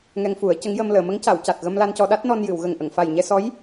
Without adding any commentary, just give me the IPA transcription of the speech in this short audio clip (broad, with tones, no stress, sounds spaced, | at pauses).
ŋ ɛ˧ ŋ f u˨˩˦ ə̯ c ə˧˥ ŋ j ə˧ m l əː˨˩˨ m ə˧˥ ŋ c a˨˩˨ w c a˨˩ t̚ ɣ ə˧ m l a˧ n c ɔ˧ ɗ a˦˥ t̚ n ɔ˧ n j ɨ˨˩˨ w ɣ ə˨˩ ŋ ʔ ə˨˩˨ ŋ f a˨˩ j ɲ ɛ˧ s ɔ˧˥ j